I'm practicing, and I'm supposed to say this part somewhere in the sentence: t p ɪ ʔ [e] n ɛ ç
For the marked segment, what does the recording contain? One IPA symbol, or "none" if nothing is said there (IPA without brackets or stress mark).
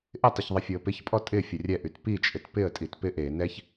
e